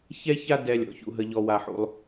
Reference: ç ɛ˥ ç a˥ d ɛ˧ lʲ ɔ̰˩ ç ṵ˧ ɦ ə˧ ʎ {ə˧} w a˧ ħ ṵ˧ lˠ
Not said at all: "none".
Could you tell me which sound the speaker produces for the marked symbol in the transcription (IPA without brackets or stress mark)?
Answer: ɔ˧